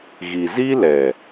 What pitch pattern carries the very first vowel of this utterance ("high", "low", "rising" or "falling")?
low